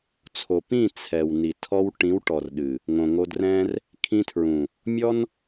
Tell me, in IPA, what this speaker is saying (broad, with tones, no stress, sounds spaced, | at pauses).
t͡sʰ o˨ p ĩ˦˨ t͡sʰ ɛ˨ w n i˨ tʰ ɔ˧ w ʈ ĩ˨˦ w ʈ ɔ˨ r ɗ ɨ˨ | ŋ õ˨ ŋ o˧ d r ɛ̃˦ r | kʰ ĩ˧ tʰ ɹ ũ˨ | mʲ ɔ˦ n